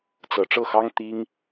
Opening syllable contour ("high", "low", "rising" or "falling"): low